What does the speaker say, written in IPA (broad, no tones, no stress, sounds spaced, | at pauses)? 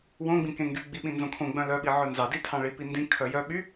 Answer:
w õ ɡ͡b ĩ k ẽ ŋ ɡ y ɡ͡b i ɓ ĩ n z õ kʰ õ ɡ͡b œ̃ l œ ɓ i ʕ œ n z ɑ d i tʰ ɑ̃ ɭ i p i n d ĩ kʰ œ j œ ɓ y